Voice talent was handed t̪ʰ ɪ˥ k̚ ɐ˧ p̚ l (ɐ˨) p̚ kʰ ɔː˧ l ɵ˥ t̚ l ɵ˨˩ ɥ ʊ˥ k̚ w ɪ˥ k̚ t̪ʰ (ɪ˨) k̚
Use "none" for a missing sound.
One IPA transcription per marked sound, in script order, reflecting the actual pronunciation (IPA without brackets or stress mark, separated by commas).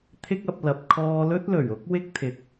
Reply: ɐ˨, ɪ˨